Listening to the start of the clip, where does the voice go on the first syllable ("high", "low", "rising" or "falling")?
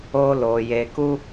high